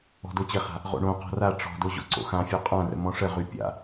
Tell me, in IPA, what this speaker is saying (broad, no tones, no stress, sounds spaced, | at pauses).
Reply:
ɔ̤ d o t͡ɕ ɘ χ a̤ | ʁ o̰ ɳ õ q ɔ̤ r a ʈ͡ʂ ɔ̤ d o ʑ o̰ ǀ o̰ x ã fʲ ɔ qʼ ã r ə̰ m ɔ̃ ʂ ə ʁ y pʲ a̰